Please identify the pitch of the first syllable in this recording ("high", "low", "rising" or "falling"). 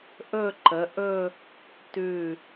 falling